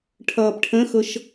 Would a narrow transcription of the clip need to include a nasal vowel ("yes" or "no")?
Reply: yes